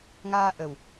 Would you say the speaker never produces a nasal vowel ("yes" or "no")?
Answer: yes